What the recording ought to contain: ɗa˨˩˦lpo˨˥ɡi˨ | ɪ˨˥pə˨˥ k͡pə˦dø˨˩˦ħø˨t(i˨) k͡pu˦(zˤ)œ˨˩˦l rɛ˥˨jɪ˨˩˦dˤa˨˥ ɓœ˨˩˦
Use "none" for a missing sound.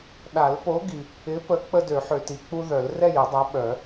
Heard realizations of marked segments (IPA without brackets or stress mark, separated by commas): i˨, ð